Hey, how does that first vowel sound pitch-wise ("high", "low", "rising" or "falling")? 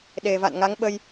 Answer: low